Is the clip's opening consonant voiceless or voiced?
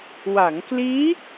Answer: voiced